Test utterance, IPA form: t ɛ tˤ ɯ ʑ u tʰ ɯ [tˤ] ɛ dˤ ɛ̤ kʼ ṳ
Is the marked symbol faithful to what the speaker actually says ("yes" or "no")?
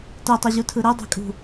no